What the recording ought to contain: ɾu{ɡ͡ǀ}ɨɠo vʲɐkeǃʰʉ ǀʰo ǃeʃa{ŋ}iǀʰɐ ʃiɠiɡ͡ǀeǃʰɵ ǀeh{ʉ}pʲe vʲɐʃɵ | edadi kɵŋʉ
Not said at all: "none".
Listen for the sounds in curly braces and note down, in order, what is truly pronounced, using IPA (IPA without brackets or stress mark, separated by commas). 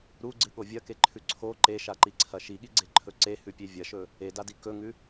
ɡ͡ǀ, ǃ, ʉ